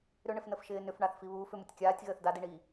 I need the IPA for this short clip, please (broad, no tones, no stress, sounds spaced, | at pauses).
ɾ ʏ ɳ ɪ f n ə f ʃ ɪː n ʏ f ɳ a θ f i β uː f ʏ m ʊ tʲ kʲ aː tʲ ɣ əː θ d a d i ɳ iː